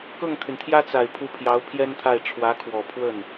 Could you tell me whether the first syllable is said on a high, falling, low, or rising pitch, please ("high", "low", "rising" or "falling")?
falling